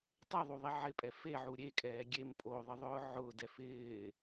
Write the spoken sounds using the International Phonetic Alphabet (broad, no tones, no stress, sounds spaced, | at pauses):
tˤ ɛ ðˤ u ðˤ i ʕ ɪ pʼ ɛ f e ʕ u ɾʲ e kʼ ɛː ɡʲ e m pʼ o ðˤ ɪ ðˤ ʊː ʕ ʊː d ɛ f ɪː